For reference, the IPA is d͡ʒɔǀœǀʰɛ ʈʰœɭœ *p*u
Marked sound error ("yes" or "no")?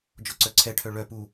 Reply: no